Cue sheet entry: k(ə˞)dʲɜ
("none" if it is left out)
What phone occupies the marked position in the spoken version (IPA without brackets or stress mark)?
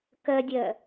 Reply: ɜ